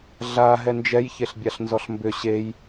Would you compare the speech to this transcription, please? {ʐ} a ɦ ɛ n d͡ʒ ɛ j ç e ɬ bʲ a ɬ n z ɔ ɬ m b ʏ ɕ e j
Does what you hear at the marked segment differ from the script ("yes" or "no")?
yes